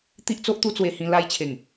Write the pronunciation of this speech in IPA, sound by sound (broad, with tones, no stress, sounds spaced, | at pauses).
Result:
t̪ i˦ ʔ t͡s o˦ ʔ t̪ u˦ t͡s w e˧ h ĩ˧ l a˧ j t͡ɕʰ e˨˩ ŋ